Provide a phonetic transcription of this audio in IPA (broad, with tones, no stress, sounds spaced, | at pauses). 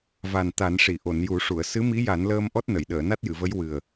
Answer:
v a˨˩ n t̪ a˨˩˦ n ʂ i˨˩˨ ʔ o˨˩˨ n j u˨˩˦ ʂ u˨˩˨ ə̯ s ɨ˧˥ m i˧˥ j a˨˩˦ n l əː˧ m ʔ ɔ˦˥ t̚ n ə˨˩˨ j ɗ əː˨˩˨ n a˦˥ t̚ j ɨ˨˩˨ v ə˧˥ j w ɨ˨˩ ə̯